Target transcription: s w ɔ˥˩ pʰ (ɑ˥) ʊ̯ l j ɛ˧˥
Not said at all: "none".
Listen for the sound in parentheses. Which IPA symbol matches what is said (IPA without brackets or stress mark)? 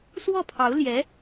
ɑ˧˥